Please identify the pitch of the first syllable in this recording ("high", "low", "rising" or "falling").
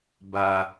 low